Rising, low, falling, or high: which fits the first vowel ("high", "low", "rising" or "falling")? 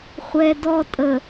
low